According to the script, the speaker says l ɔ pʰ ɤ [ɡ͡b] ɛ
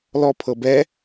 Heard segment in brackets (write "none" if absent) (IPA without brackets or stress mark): b